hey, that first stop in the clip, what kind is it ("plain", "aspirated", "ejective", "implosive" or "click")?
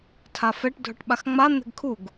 aspirated